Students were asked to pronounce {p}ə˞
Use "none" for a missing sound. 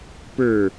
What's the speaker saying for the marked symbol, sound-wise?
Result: p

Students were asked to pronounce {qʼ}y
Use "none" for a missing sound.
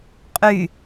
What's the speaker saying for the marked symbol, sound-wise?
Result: qʼ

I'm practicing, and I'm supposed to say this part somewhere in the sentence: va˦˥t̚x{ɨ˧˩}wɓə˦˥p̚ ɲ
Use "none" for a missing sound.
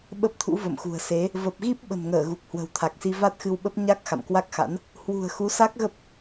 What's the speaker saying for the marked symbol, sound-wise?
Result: ɨ˧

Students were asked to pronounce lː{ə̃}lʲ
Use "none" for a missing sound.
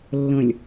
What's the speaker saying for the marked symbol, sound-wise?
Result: ə̃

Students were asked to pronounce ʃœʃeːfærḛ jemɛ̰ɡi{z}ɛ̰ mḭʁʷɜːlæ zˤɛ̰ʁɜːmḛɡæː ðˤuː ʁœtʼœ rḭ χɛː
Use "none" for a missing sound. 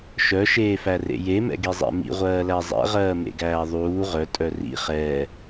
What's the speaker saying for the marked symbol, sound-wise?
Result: zˤ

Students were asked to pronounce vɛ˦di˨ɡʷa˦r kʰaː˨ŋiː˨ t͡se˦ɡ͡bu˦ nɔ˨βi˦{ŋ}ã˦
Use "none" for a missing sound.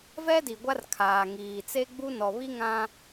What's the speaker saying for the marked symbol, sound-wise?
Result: ŋ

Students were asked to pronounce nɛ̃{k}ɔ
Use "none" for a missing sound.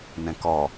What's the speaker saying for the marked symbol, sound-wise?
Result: k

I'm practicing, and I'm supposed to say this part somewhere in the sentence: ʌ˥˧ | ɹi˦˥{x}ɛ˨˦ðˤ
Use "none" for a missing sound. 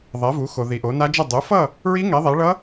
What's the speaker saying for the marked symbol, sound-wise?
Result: ŋ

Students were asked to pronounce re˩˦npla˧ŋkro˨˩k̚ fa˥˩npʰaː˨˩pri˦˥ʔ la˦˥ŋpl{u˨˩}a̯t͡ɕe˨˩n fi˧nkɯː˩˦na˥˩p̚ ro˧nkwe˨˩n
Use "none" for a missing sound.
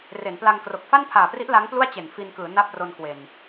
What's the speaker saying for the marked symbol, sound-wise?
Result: u˥˩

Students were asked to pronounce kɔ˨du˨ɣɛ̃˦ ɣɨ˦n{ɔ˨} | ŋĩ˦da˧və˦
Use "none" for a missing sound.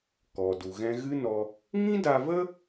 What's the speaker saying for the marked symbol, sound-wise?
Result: ɔ˧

